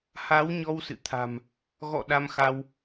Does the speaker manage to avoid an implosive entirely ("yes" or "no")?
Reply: no